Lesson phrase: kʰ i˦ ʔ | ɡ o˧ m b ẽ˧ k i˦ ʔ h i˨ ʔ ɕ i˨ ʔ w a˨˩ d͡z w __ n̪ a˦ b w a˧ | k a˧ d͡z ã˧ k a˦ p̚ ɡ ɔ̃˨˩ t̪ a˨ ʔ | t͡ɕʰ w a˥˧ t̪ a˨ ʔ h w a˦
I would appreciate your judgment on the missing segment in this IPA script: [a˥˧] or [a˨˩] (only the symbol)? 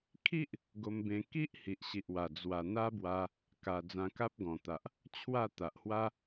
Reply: a˨˩